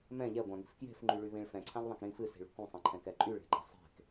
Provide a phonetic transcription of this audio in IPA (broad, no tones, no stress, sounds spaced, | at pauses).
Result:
m ɛ̃ ʎ ɛ ɡʷ ã ŋ i̤ f k j e̤ f ŋ͡ǃ y ɭ y β ĩ ɭ f ɛ̃ ǀʰ ã ʎ ðˤ ɛ̃ k ɾ ĩ f ɨ s i̤ ɭ ṳ k ũ sˤ ɛ̃ ǃʰ ɛ̃ k ɛ ǃʼ y ɭ e̤ ɡ͡ǃ a sˤ e̤ k